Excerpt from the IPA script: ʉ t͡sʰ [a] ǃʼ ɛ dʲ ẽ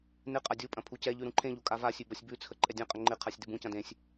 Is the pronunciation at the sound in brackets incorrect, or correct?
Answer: incorrect